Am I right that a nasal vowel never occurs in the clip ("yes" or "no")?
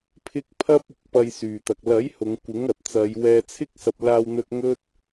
yes